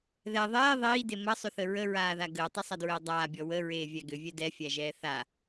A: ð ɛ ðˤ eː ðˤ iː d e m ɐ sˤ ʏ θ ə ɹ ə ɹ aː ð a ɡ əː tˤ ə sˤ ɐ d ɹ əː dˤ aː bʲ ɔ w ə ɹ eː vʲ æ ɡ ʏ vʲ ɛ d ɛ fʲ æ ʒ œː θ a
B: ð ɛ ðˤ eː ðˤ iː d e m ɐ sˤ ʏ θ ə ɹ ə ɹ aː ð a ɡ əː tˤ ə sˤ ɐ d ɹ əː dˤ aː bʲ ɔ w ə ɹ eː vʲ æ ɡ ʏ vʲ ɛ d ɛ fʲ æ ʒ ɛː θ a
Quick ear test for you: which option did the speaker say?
B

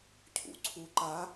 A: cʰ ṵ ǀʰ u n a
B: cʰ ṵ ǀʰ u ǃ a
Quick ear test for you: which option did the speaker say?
B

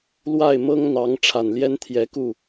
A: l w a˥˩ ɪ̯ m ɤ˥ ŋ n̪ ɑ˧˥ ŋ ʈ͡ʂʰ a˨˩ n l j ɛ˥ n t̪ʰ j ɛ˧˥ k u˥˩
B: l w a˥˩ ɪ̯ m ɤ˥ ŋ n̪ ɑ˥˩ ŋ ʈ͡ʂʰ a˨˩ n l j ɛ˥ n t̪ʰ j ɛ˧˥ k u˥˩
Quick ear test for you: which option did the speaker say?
A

